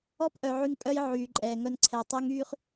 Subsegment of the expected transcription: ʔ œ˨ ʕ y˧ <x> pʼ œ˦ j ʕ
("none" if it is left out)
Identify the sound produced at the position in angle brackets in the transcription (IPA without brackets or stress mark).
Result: ŋ